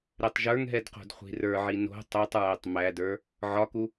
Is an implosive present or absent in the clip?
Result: absent